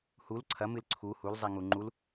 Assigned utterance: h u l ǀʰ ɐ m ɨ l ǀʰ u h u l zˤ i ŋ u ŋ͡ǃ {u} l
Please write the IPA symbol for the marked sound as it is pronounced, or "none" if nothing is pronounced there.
u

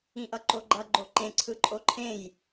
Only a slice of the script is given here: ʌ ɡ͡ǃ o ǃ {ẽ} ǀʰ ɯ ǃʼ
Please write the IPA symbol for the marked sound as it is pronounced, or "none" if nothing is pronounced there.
ẽ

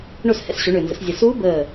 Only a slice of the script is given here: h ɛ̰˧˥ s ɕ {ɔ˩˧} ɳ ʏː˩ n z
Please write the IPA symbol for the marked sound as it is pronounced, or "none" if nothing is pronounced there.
o˩˧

